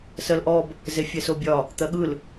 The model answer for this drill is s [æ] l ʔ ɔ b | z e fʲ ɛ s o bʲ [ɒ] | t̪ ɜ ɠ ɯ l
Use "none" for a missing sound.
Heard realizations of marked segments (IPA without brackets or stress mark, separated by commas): ɜ, ɒ